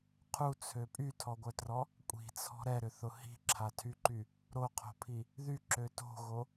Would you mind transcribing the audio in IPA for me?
qʰut͡sʰø pʼytʰɔɡʷœtrɔ | kʷʼi̤t͡sʰɔ̤ ɾɛɾʏθʊ hi̤ǁʰatʰyǃy | ɾoqʰo̤pʰi | ðyǁø to̤ɣo

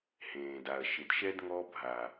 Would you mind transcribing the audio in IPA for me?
hẽː˨da˨ɐ̯ ʃɪ˨dʃɛ˦d ŋɔ˦ bʱa˨

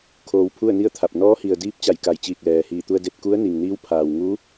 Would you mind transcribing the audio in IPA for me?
kʰoː˧wpʰu˥˨ə̯ni˥˨ə̯t̪ʰa˧˩p̚ nɔː˧˥hi˩ə̯diː˧˥p̚ t͡ɕa˧˩jka˧˩jt͡ɕiː˧˩k̚ lɛː˩hiː˧˩ t̪u˧ə̯de˧t̚ ku˧˥ə̯ni˩ŋniː˧˥w pʰaː˩wŋu˧˥

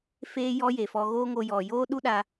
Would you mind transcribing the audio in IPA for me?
feː˦jɔ˦je˨fɔ˧ ɣoː˦ŋo˧jɔ˨ joː˦ ɗu˦ɗa˧

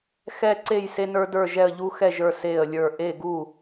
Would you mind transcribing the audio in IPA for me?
xɛ˦ǀe˥˨j se˦nə˞˦də˞˥˨ʒɛ˥˨ə̯ ʎu˦xɛ˥˨ʒə˞˥˨ se˥˨ə̯lʲə˞˥˨ ʔe˥˨ɡu˥˨

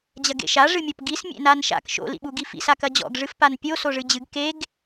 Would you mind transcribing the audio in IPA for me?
d͡ʑɐɡḛʃa ʐɨmʲɔpɡis mʲḛnanʃa̰k ʃo̰ lḭɓuɡifḭs akɐd͡ʑɔ̰ɡ ʐɨfpanpʲo soʐɨd͡ʑɨɡ keɡ

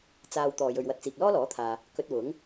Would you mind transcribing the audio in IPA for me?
t͡saː˨w t̪ɔː˨jɵ˨ɥwɐ˧t̚t͡siː˨k̚ lɔː˥lɔː˨˥t̪ʰaː˨ | kɵ˧t̚wʊ˨˥ŋ

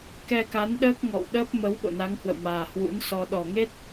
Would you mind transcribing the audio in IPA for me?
kɛ˧ka˨˦nɗəː˦˥k̚ ŋɔ̰˧˨wɗəː˦˥p̚ mə˨˦w ɓo̰˧˨na˨˦ŋhwə̰˧˨wmaː˨˩ hwṵ˧˥nsɔ˧ ɗɔ˨˩ŋe˦˥t̚

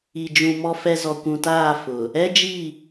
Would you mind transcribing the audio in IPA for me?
i˨d͡ʒũ˨ mɔ˨fɛ˨ zɔ˨kʷũ˨taː˦˨ fʊ˨ | ɛ˦d͡ʒi˦˨

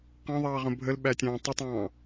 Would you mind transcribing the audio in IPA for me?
qɑ̃ðˤɑːʁə̃ bʱəlɓætʲɑ̃ː tˤʊtˤɑ̃ː

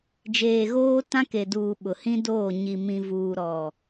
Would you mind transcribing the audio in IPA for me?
d͡ʒeː˨ɣoː˦ tã˦ke˨duː˨ ɓʊ˨hĩ˦doː˦˨ ɲi˨ mĩ˨vuː˨ɾɔ˨

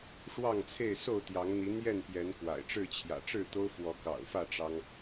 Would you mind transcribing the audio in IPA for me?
ʂwɑ˥˨ŋt͡sʰe˥˨ɪ̯ so˥˨ʊ̯t̪jɑ˨˦ŋn̪i˨˦n̪jɛ˥˨n pjɛ˨˦nkwa̰˨˩ɪ̯ʈ͡ʂɻ̩˥˨ t͡ɕʰjä̰˨˩ʈ͡ʂɻ̩˥˨t̪o˦ʊ̯ fwɔ˨˦kɑ̰˨˩ʊ̯fä˥˨ ʈ͡ʂɑ˦ŋ

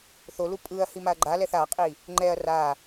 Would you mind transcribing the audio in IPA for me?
θolu pʼɯɐ̯hi maɐ̯ɡ͡ǃalɛθ aqʼi | ŋ͡ǃɛɐ̯ ra

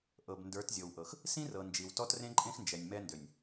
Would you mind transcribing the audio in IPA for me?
ʔɤ˨bndə˞˨˦tzʲɤ˨wʔɤ˨x | sĩ˦rɤ˨nd͡ʒi˨w tɔ˦trẽ˦ǃʼẽ˦xnd͡ʒɛ˨nʲ mɛ˦ndø˨nʲ

